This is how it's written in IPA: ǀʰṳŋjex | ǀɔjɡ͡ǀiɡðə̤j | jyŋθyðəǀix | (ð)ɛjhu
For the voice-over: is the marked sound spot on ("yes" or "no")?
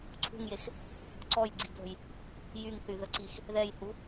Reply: yes